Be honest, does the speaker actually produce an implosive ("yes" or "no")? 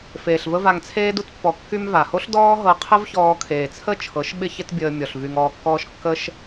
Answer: yes